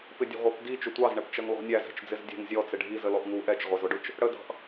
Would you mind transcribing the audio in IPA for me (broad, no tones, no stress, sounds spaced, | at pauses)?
p ɪ dʲ ɛ̤ ʁʷ i p d i t͡ʃ ʊ tʷ ɑ z ɳ ɛ p t͡ʃ ʌ ŋ l ɔ̤ nʲ æ z ɛ̤ t͡ʃ d͡z ɪ z dʲ ɛ̤ ŋ zʲ ɔ t͡s ɪ ɖʱ i z ə l ɔ ʔ ŋ u ʔ ɛ t͡ʃ ʁʷ ɛ z ʊ ɖ ʊ t͡ʃ | ɽ ə d ɑ̤ ʔ